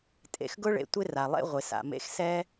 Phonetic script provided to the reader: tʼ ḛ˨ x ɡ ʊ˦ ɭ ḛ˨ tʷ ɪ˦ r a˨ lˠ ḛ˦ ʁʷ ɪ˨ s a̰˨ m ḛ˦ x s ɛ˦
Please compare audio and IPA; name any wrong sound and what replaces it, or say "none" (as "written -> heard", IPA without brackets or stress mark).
none